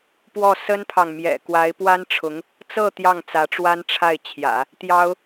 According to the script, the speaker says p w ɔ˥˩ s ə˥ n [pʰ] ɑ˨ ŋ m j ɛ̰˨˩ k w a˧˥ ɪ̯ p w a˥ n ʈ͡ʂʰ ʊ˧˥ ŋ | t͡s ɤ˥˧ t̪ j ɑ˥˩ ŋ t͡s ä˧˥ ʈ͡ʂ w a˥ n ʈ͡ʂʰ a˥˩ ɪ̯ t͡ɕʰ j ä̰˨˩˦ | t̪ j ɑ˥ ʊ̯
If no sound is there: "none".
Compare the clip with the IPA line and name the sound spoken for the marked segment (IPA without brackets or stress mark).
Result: pʰ